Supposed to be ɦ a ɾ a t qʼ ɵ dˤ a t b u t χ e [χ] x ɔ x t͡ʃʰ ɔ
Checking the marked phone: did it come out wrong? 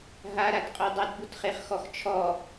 no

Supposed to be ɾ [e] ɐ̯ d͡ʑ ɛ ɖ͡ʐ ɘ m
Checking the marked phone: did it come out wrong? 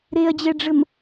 no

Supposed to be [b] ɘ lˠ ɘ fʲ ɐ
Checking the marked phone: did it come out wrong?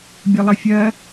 yes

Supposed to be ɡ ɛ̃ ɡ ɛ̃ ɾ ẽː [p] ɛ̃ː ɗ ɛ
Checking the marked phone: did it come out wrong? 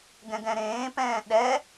no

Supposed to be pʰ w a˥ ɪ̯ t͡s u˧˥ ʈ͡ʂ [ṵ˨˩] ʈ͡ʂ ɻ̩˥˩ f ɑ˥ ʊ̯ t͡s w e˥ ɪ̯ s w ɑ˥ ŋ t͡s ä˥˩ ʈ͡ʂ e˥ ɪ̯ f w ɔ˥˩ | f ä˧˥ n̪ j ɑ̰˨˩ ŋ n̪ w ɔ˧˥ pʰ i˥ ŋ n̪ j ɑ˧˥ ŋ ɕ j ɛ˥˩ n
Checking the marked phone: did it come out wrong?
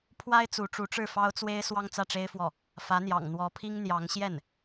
yes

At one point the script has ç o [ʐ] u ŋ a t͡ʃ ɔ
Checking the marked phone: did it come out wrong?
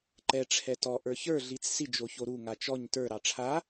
yes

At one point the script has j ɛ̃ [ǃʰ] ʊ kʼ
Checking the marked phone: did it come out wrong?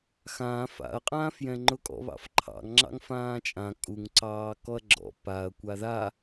yes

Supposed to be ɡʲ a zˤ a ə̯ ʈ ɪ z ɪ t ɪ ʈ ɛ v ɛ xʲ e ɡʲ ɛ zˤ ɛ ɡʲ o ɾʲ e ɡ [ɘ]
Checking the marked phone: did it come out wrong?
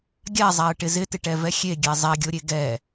yes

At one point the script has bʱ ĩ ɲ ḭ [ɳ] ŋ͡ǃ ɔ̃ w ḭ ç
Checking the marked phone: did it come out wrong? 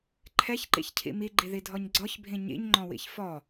yes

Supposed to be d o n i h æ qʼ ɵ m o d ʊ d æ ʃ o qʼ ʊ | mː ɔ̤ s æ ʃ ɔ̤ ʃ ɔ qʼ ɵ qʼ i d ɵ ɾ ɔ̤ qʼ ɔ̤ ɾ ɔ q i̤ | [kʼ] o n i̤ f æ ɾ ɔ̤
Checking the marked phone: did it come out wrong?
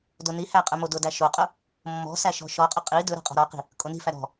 no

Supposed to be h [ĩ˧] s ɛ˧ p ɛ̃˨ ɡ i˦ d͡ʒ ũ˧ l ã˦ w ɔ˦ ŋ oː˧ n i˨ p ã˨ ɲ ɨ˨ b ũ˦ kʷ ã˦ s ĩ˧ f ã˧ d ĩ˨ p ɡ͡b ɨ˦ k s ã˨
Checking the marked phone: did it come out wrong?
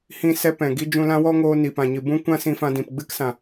no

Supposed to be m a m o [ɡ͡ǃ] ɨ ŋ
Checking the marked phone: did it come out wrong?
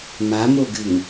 yes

